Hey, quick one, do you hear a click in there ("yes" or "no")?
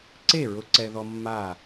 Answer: yes